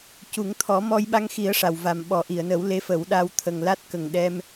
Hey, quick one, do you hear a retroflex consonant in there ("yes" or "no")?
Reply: yes